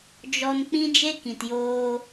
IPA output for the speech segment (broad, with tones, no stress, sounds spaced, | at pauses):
d͡ʒ ɔ˧ n k͡p ĩ˦ d͡ʒ e˦ k ĩ˨ t j oː˧